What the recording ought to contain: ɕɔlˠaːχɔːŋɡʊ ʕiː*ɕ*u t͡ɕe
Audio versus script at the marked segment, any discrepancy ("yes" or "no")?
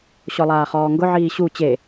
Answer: no